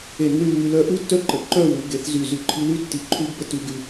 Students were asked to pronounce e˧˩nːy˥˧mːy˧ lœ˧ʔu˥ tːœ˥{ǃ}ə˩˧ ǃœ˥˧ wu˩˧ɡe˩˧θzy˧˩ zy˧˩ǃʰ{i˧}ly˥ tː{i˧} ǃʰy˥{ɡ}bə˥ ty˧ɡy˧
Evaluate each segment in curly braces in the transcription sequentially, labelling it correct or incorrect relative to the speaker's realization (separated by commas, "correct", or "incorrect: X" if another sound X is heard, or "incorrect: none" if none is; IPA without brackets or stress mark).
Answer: correct, correct, correct, correct